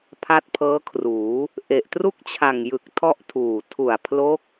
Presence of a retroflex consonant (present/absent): absent